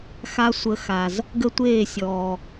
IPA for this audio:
x a˧ sʷ ə˧ x a˨ z | ɡ ə˦ tʷ eː˦˨ sʲ ɔː˨

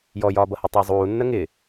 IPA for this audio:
j ɔ j ɒː b ʌ h ʊ tˤ ʌː zˤ uː nː ə ŋ ɪ

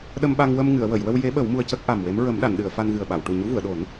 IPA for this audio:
ɗ ə˧ m ɓ a˧ ŋ w ə˧ m ŋ ɨ˨˩˨ ə̯ w ə˨˩˨ j w ə˧ w j e˧˥ ɓ ə˨˩˦ w m u˧ ə̯ c ə˦˥ k̚ ʔ a˨˩ m w e˧˥ m ɹ ə˨˩˦ m ɗ a˨˩˨ n ɗ ɨ˨˩˨ ə̯ f a˧ n ɣ ɨ˨˩ ə̯ ɓ a˨˩˨ w ʈ u˨˩ ɲ u˧˥ v u˨˩˨ ə̯ ɗ o˨˩˦ n

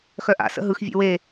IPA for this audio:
x œ ʔ a̰ s ə̰ ɦ ɯ x vʲ ḛ w e

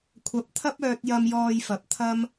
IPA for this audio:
kʷʰ ɐ˨˥ p̚ t̪ʰ ɐ˥ p̚ œː˧ t̚ j ɐ˧ m j ɔː˧ j f ɐ˨ p̚ t̪ʰ ɐ˥ m

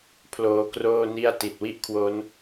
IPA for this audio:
pʰ l oː˧ k r oː˥˩ n i˥˩ a̯ t i˨˩ t̚ w i˥˩ ʔ kʰ w o˦˥ n

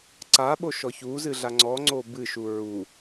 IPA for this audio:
ǀ a ɓ o ʃ ɔ ç u z ɨ ɮ a ŋ͡ǀ ɔ ŋ͡ǀ o b ɨ ʃ u ɹ u

